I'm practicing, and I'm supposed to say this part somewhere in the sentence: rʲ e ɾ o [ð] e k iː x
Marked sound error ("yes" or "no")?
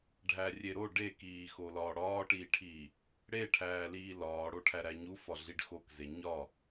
yes